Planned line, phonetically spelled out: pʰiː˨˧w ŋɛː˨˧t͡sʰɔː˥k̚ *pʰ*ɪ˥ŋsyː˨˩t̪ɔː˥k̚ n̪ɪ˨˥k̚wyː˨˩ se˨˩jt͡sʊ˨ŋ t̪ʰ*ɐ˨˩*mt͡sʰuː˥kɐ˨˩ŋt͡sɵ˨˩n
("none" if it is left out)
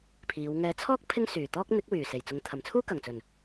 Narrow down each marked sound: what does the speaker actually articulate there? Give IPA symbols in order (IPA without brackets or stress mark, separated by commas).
pʰ, ɐ˨˩